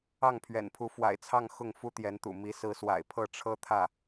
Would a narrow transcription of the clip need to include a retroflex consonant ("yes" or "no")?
yes